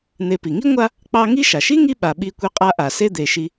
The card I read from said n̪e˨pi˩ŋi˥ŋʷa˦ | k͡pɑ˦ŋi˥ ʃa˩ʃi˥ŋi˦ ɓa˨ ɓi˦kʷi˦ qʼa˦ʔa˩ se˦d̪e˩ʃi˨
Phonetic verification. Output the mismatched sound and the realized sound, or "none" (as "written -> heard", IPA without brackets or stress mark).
none